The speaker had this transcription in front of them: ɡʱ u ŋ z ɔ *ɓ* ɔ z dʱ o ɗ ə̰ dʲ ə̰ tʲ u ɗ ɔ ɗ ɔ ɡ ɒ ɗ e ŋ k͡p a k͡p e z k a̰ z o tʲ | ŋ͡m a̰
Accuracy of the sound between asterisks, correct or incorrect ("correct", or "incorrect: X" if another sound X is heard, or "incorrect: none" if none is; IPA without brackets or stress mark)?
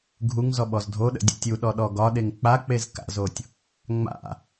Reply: correct